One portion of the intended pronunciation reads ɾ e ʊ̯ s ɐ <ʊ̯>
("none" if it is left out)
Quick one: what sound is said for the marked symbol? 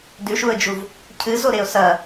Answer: none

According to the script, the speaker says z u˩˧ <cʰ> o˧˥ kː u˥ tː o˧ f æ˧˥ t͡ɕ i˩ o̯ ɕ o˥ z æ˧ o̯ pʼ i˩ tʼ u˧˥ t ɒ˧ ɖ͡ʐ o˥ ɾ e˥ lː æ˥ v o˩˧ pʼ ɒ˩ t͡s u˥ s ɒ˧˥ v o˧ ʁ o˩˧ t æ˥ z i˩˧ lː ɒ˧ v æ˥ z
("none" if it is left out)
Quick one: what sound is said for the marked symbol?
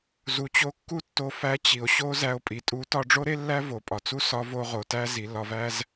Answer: t͡ɕ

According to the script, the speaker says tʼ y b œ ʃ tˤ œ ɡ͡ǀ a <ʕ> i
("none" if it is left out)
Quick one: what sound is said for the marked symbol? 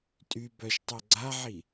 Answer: ʕ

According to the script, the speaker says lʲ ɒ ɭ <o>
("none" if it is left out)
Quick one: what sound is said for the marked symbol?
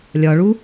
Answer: u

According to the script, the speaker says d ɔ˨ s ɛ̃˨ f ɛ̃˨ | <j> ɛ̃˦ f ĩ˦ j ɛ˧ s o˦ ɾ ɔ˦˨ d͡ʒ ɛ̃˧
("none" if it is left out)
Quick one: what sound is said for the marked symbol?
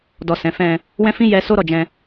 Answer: w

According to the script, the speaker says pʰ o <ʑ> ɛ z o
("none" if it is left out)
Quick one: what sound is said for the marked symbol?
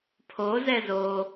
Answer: z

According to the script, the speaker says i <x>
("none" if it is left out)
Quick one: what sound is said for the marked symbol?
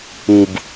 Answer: ɡ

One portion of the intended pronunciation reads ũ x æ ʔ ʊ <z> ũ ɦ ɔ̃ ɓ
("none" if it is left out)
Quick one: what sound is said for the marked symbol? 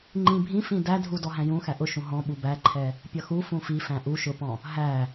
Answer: ʃ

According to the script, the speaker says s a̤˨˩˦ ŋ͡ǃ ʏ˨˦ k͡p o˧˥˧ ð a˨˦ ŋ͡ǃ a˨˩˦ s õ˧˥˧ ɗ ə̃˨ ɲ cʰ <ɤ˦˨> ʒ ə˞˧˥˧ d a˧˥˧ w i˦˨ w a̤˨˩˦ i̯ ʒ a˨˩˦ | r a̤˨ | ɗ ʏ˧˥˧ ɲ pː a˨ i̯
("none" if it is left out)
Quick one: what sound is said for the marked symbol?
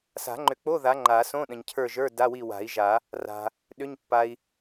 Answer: ə˞˦˨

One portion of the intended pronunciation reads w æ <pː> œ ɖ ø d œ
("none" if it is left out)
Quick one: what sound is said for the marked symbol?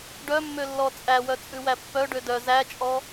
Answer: pː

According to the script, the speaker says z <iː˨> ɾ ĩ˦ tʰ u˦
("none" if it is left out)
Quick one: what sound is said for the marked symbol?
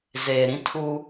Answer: eː˨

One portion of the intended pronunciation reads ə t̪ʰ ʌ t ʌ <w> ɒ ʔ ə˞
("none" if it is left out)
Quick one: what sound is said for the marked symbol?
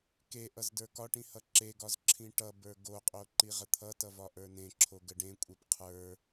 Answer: v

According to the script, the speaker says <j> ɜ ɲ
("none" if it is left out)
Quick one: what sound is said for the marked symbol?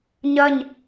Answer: ɲ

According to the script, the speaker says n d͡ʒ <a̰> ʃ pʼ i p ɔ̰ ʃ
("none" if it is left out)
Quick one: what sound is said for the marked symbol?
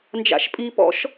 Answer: a̰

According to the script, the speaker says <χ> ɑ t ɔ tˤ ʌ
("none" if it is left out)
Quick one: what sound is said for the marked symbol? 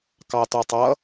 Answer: k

